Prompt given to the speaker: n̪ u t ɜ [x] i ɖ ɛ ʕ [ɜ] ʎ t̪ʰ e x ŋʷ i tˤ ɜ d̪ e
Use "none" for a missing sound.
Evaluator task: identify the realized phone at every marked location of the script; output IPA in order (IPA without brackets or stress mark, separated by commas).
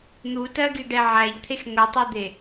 ɡ, æ